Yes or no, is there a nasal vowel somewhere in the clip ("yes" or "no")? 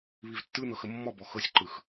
no